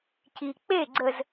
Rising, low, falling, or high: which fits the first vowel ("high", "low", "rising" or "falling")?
low